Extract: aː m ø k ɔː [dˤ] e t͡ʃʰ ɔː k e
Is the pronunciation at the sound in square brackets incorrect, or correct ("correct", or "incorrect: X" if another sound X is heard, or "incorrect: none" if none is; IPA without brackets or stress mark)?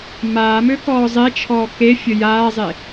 incorrect: zˤ